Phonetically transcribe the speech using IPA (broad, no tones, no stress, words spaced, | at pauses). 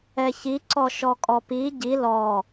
ɛçi ǀɔʃɔkʼɔpi ɟi lɔ